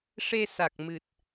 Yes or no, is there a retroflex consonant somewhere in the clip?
yes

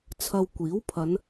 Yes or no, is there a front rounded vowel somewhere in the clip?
no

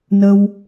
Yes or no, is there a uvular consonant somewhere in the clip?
no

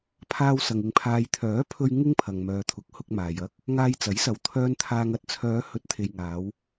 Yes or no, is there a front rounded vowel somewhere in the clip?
yes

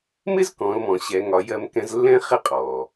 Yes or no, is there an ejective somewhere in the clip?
yes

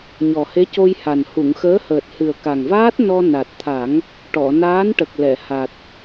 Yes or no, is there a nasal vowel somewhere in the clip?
no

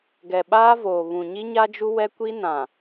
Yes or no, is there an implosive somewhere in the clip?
yes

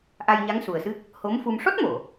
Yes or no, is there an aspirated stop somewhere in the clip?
no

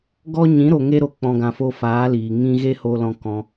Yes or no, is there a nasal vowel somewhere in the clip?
yes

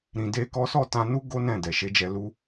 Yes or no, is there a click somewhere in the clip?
no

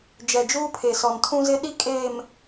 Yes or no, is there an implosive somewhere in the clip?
yes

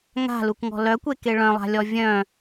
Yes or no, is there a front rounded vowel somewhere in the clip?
yes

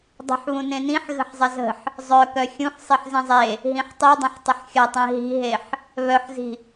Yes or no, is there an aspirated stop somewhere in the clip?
no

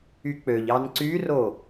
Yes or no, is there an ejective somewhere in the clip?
no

